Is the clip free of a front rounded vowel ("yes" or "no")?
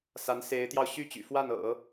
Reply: no